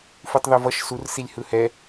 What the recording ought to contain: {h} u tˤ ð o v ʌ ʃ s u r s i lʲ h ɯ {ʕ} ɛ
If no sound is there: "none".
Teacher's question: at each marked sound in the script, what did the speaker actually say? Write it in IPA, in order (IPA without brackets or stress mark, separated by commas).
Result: f, h